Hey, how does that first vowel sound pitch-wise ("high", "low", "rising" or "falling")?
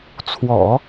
low